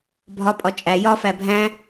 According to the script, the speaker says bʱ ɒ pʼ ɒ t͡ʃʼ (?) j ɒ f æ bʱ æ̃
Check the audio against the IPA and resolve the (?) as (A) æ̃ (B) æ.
B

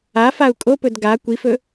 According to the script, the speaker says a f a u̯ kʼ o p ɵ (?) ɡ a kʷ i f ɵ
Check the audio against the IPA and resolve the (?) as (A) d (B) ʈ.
A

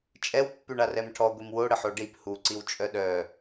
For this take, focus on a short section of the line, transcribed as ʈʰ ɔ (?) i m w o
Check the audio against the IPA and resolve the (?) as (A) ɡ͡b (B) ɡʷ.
B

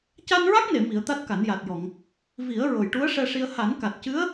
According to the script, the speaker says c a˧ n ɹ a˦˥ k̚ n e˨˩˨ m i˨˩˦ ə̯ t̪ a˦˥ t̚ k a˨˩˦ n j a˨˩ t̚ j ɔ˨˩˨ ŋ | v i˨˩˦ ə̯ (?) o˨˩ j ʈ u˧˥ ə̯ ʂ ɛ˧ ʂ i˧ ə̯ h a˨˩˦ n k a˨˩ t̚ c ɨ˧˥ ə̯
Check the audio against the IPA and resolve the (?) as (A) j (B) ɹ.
B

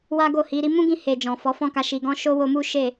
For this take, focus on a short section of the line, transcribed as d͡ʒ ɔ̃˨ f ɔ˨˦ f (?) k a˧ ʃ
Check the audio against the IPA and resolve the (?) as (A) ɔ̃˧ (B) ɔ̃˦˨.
B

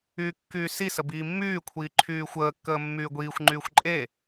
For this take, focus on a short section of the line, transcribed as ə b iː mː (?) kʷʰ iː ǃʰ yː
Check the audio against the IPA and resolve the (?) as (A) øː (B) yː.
B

